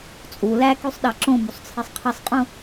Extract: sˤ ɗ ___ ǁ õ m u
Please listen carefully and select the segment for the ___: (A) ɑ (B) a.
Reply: A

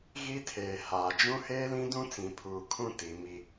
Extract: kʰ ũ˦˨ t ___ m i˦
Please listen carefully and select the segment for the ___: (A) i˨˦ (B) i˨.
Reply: A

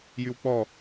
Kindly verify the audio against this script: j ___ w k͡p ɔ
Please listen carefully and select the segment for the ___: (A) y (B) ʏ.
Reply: A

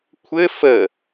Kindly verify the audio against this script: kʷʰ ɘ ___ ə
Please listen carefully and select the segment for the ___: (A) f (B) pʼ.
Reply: A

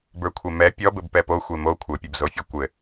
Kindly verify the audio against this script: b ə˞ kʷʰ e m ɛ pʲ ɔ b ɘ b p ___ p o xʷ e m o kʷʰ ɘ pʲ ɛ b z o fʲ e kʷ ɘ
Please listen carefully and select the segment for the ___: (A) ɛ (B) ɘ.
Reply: A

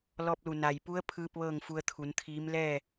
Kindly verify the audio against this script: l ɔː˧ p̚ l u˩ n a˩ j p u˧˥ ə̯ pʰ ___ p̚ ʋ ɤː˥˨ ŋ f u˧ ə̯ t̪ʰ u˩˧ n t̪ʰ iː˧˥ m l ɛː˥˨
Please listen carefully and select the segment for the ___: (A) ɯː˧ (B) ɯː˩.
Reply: A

